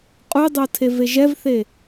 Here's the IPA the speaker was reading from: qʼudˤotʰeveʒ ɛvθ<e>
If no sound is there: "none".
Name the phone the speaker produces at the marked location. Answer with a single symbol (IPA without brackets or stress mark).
e